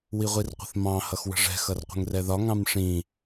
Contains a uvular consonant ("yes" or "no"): yes